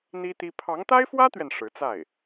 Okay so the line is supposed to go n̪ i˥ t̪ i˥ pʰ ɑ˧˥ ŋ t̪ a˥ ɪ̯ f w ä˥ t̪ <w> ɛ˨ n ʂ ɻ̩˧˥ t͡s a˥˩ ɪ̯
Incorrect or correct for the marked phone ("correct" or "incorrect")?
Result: incorrect